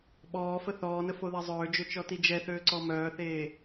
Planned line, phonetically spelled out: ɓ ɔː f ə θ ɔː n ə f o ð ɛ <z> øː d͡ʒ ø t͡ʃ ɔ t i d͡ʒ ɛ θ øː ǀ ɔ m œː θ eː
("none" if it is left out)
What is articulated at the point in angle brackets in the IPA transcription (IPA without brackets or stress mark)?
zˤ